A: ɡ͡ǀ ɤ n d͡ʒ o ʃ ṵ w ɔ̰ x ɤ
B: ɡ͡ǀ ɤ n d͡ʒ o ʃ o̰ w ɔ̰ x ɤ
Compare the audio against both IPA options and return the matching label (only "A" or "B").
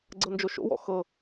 B